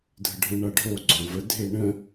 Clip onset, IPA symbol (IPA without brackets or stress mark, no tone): dʱ